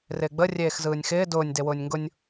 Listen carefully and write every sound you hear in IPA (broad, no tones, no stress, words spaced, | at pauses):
rɪːɡ͡bə rʲeːxzɯːnʲxɪː dʊːnʲ dewʊːnʲŋɡʊnʲ